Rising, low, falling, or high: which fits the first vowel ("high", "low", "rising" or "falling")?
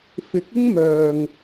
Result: rising